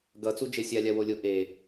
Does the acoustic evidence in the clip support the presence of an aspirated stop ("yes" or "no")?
no